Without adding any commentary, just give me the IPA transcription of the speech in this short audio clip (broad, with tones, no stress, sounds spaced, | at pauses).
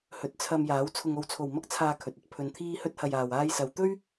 h ɵ˨˥ t̚ t͡sʰ ɐ˧ m j aː˨˥ w t͡sʰ ʊ˨ ŋ o˨ w t͡sʰ o˨˩ w m ɐ˥ k̚ t͡sʰ aː˧ kʰ ɵ˨ t̚ ɐ˧ t̚ pʰ ɵ˨ n t̪ʰ iː˧ h ɵ˧ t̚ h ɐ˨ j aː˨ w aː˧ j s ɐ˨˧ w t̪ ɵ˥ ɥ